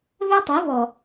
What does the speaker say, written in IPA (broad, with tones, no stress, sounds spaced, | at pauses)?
β ɛ˦ tˤ i˨˦ β ɔ˨